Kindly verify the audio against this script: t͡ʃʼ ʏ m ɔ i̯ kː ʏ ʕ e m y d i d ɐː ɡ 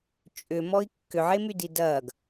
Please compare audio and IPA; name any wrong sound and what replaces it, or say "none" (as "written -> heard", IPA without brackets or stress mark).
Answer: none